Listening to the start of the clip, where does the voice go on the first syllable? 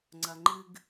low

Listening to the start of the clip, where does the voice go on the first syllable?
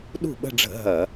falling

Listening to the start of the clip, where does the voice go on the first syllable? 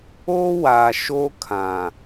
high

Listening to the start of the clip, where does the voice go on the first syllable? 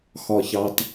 low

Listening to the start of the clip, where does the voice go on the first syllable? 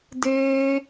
high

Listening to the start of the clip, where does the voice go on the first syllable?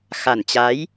low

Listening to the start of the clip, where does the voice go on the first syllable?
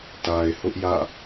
low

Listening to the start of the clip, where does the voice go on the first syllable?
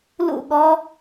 falling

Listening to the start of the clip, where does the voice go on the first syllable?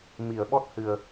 low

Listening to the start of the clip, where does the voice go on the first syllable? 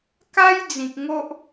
high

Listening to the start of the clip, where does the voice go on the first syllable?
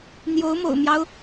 rising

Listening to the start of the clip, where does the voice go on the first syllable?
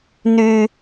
high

